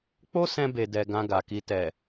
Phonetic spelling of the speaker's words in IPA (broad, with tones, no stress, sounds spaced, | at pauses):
k͡p o˦ s ɛ̃˧ b e˨ d ɛ˨ ɡ ã˧ ɡ a˨ k i˧ t ɛ˨